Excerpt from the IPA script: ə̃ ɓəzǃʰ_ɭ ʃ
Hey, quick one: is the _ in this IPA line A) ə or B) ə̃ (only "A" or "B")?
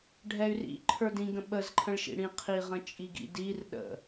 B